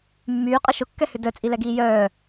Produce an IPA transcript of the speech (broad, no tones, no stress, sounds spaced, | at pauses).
mː yː qʼ ə ʃ ʊ kː ɛ h ʏ d œ t͡sʼ i l ɛ ɡ iː j œː